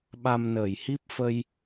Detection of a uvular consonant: absent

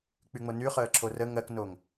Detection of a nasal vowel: absent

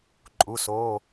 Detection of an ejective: present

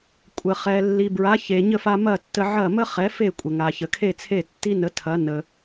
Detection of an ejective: present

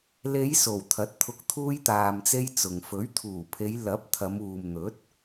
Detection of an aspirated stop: present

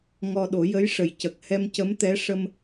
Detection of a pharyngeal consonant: absent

